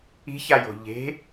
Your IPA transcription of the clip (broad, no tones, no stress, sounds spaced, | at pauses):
i̤ ç a j o̤ ʎ e̤